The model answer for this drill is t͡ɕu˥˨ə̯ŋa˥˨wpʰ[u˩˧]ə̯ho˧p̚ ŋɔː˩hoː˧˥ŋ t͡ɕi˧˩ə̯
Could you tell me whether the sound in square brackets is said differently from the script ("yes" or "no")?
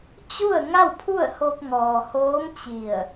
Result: yes